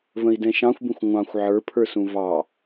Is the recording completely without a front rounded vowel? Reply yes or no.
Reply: yes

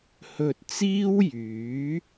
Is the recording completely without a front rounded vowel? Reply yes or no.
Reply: no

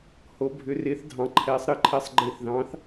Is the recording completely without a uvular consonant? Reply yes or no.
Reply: yes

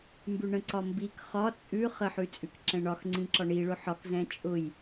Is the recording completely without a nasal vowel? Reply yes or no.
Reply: no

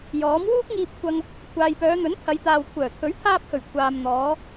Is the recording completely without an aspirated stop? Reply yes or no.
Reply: no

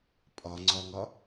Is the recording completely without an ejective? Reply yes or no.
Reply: no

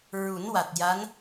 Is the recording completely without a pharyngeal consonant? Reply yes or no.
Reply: yes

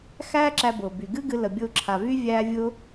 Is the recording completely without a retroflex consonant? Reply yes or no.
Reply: yes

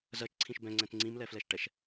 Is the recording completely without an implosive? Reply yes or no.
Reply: yes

